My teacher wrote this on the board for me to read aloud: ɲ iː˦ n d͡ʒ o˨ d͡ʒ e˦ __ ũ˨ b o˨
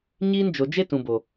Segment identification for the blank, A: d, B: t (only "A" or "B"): B